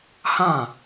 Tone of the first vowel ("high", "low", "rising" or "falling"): falling